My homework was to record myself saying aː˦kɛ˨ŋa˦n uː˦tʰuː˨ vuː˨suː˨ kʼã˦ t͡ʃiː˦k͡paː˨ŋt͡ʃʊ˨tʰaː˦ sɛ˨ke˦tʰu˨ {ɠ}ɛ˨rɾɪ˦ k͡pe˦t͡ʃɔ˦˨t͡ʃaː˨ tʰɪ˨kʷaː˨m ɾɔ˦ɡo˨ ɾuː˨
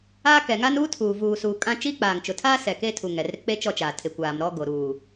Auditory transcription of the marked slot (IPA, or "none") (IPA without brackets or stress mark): ŋ